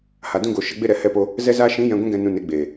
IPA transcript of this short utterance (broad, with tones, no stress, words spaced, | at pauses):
ha˨dũ˧ɡo˨ ʃə˧ɡ͡be˦ ɾɛ˨hɛ˧po˧ | zɛ˦zaː˦ ʃĩ˨˦jɛ̃˨ ɡʷĩ˧ɡɛ̃˨ nũ˨ ne˨˦ɡ͡beː˨